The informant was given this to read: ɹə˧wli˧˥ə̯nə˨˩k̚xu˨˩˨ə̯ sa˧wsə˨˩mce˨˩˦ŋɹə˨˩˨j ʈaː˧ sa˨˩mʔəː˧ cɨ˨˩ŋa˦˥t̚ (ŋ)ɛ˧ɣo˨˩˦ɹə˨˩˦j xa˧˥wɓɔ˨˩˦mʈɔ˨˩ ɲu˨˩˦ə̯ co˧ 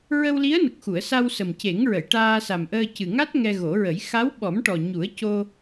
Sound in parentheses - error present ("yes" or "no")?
no